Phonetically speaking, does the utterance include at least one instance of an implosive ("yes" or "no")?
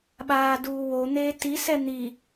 yes